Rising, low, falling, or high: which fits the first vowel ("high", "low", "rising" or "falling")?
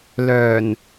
low